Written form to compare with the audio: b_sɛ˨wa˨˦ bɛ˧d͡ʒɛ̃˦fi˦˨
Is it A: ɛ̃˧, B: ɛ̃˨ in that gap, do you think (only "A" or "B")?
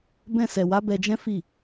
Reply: A